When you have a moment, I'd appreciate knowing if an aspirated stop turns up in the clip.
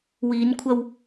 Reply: yes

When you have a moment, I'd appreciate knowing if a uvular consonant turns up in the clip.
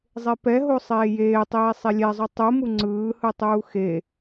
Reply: no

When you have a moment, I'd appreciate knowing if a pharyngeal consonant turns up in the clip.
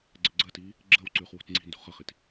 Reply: no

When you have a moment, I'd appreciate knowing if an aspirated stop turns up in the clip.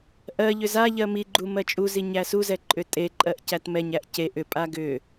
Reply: no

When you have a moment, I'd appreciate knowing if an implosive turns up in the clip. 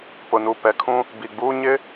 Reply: no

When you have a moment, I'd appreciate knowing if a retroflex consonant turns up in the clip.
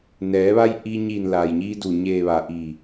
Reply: no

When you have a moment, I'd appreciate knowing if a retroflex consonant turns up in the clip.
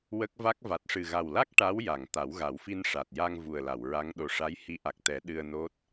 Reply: yes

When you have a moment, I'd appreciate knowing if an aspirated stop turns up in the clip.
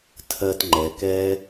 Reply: yes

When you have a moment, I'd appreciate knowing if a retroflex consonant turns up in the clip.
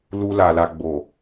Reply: no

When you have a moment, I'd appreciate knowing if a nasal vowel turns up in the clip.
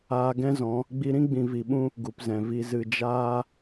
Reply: yes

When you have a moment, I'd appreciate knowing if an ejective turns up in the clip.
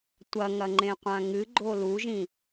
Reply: no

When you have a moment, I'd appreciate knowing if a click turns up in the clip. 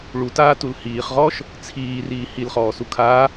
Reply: no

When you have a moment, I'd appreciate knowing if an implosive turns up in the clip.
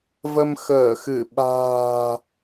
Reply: yes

